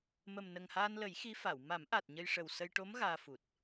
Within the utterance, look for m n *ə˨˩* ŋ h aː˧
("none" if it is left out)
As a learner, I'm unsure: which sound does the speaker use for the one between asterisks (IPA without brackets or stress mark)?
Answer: ə˨˩